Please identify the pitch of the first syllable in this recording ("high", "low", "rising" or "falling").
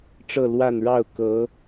falling